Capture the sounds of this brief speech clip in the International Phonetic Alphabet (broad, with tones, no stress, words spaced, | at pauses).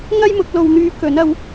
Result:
ŋɐ˥jmʊ˨˥k̚lo˧w n̪yː˧ kɵ˨˥n ɐ˨˥w